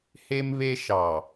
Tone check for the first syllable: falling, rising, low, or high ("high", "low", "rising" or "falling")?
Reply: high